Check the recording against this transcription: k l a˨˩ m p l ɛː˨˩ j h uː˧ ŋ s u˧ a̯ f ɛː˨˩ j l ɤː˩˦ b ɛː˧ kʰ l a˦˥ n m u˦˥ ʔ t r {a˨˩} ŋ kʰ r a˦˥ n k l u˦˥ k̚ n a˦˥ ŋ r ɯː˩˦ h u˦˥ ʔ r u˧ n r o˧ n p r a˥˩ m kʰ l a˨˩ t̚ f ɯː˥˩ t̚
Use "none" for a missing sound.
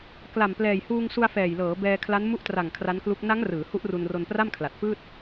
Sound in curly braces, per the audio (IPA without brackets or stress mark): a˨˩